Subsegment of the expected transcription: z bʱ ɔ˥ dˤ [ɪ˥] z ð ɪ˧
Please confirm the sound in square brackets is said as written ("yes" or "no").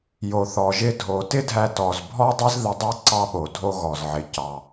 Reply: no